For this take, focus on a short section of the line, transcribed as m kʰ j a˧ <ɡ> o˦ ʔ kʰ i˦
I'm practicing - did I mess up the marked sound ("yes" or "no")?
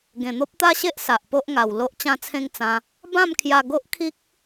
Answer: no